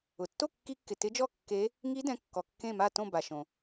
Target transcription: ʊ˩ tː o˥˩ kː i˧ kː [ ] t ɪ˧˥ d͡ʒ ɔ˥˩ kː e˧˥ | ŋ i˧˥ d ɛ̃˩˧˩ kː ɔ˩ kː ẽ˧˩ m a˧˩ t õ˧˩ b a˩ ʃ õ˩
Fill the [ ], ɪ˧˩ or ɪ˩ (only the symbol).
ɪ˩